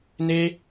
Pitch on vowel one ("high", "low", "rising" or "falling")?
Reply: high